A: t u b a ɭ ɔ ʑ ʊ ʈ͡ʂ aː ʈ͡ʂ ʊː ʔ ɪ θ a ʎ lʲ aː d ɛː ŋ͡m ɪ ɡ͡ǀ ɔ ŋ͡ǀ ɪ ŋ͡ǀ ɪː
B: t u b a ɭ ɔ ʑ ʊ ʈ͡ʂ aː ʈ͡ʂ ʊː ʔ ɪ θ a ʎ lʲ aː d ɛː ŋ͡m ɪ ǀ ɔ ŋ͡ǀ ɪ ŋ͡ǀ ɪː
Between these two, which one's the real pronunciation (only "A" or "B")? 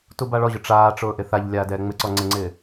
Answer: B